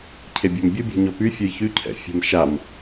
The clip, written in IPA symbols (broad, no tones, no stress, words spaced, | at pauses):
cʰebʲɔmbʲo bʲɔ̤ɲɔpy fʲojçy cʰɛ̰fʲə̤m ʃam